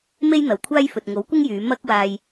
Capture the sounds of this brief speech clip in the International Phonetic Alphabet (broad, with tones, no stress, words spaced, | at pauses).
me˥jn̪ɐ˨wkʷʰaː˥jfɵ˨t̚ ŋo˨˥wkʷɪ˥ŋjyː˨˧ mɐ˥k̚ waː˧j